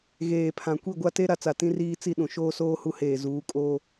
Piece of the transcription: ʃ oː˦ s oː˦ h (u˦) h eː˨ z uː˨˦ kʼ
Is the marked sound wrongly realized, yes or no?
no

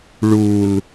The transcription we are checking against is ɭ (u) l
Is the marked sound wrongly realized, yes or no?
no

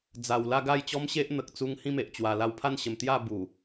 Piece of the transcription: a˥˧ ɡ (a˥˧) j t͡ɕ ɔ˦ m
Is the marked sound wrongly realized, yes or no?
no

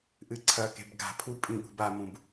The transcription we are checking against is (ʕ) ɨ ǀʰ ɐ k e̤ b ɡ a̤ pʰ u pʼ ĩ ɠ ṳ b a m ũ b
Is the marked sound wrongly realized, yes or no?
yes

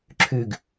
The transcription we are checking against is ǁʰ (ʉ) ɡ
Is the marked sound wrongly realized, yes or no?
no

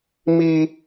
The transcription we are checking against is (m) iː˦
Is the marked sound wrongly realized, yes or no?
no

